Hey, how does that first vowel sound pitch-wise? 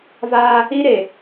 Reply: high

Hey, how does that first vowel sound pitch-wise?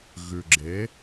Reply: low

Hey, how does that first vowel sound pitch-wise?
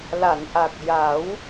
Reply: low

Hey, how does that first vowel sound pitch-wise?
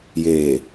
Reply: low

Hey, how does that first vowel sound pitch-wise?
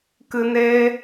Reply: low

